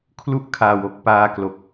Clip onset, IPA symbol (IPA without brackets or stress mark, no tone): kʰ